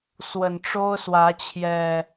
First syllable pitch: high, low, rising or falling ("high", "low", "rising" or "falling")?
low